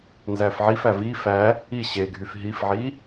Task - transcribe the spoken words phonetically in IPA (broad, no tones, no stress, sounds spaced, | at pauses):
n z æ f ʕ i f æ v i f æ | i ɕ e ɡʱ y f ɦ i f ʕ i